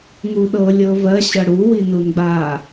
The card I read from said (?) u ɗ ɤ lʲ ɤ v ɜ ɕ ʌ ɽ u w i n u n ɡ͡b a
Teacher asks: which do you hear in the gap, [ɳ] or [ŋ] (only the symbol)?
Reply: ŋ